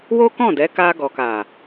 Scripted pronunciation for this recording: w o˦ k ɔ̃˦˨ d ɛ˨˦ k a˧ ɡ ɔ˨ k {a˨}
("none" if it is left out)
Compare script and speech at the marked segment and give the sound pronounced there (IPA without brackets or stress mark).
a˨